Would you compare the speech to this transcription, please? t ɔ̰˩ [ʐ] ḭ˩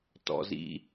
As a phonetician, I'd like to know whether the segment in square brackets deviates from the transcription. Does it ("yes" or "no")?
yes